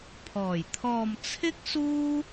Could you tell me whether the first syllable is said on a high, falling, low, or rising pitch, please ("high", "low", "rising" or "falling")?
low